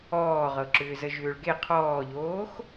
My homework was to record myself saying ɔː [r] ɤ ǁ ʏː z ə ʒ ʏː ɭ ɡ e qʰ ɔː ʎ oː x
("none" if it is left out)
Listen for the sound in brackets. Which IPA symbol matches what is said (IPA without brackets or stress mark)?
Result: ʁ